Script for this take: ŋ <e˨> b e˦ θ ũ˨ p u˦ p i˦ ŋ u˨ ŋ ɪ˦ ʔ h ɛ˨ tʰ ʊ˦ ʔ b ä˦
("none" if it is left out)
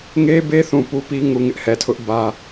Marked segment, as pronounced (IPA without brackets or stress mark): e˦